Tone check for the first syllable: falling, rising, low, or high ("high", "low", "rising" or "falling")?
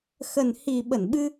low